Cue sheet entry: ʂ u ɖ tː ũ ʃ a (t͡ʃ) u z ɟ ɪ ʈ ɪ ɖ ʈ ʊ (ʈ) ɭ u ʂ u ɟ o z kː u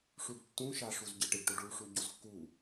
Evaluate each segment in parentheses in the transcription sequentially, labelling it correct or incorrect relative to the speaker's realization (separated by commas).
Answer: incorrect, incorrect